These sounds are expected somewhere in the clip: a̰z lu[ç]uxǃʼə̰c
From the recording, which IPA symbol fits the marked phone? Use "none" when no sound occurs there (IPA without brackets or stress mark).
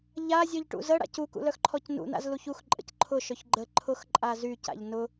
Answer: ç